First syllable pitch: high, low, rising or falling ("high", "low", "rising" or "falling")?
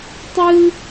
high